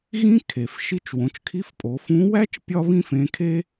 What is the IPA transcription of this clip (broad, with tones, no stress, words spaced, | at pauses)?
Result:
ɣĩ˥kʰe˩f ʃi˧˥t͡ʃwõ˩˧t͡ʃkʰi˧˥fpʼo˩˧ fũ˧˥wæ˥t͡ʃ pʲɒ˥βĩ˥fẽ˧˥kʰe˥